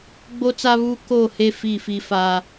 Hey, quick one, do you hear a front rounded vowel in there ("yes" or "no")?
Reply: no